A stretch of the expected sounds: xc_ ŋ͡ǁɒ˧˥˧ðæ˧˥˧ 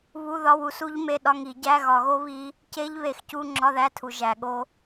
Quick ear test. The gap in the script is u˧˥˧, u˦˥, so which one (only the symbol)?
u˧˥˧